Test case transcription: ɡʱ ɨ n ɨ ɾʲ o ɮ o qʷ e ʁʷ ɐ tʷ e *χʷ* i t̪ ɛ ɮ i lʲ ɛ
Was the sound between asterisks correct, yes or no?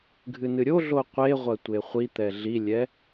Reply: yes